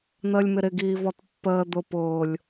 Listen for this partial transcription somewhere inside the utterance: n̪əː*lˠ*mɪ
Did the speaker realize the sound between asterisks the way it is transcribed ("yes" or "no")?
no